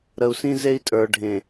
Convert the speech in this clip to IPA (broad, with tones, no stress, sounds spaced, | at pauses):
ɾ ə˨ u̯ s ĩ˦ z e˦ i̯ tʼ ə˞˨ ɖʱ ẽ˨